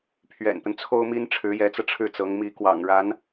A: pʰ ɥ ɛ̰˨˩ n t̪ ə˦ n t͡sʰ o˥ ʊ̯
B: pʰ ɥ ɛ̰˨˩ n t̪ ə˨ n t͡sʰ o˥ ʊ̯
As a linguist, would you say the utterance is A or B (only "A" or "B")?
A